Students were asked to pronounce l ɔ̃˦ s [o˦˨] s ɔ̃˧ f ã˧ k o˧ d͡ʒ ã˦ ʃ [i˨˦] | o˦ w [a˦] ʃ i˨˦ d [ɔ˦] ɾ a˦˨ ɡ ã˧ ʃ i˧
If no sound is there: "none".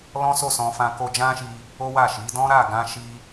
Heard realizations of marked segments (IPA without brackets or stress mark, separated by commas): o˦˨, i˧, a˦˨, ɔ̃˦